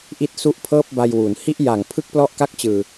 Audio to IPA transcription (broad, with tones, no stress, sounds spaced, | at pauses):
ʔ i˥˩ t̚ s u˥˩ ʔ pʰ ɤː˥˩ p̚ b a˧ j w u˩˦ n h i˥˩ ʔ j a˨˩ ŋ pʰ ɯ˥˩ k̚ p l ɔ˥˩ ʔ k a˥˩ k̚ t͡ɕ ɯː˧